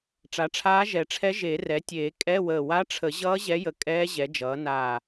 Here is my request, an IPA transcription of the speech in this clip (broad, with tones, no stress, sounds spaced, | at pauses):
ʈ͡ʂ a˩˥ ʈ͡ʂʰ aː˧˥ ʒ ɛ˨˩˦ ʈ͡ʂʰ ɛ˧˥ ʒ e˨˩˦ r ɛ˩˥ tʲ eː˨˩˦ kʼ ɛ˧˥˧ w əː˧˩ w a˧˥ ʈ͡ʂʰ ə˨˩˦ ʑ ʌː˧˥ ʑ ɛ˧˥ j ə˧˩ kʼ ɛː˧˥ ʑ ɛ˩˥ d͡ʒ ʌː˩˥ n aː˧˩